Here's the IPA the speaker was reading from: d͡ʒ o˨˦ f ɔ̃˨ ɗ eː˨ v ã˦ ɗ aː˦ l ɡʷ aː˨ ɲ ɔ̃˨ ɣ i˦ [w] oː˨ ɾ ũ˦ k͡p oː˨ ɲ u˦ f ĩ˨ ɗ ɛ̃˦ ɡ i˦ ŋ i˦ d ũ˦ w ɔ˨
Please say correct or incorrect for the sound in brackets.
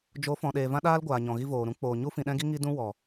incorrect